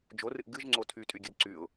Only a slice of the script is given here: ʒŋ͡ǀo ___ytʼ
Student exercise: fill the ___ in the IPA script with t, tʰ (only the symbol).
tʰ